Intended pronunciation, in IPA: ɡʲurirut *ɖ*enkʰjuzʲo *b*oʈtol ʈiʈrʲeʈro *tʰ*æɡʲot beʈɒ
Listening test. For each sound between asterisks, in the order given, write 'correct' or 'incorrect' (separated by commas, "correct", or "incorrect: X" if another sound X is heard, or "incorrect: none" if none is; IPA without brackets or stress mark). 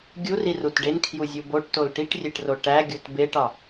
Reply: correct, correct, incorrect: ʈ